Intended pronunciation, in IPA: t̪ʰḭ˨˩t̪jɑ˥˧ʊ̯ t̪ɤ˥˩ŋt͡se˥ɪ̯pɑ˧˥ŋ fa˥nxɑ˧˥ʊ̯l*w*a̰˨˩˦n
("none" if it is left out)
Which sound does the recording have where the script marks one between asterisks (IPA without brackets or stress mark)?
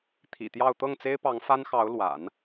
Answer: w